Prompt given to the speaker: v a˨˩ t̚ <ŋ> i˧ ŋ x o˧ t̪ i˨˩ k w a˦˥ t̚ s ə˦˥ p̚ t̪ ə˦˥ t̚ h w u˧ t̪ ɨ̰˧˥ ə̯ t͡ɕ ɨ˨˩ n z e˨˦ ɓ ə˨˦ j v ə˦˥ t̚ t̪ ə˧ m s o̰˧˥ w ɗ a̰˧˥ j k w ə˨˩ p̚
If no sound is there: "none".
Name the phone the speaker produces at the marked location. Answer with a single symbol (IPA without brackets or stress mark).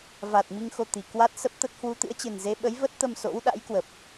m